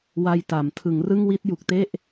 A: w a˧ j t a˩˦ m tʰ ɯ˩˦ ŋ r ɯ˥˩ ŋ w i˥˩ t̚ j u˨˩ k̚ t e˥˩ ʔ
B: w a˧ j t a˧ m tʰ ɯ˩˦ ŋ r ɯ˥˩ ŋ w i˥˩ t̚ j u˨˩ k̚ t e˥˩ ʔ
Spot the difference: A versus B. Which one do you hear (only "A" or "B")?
A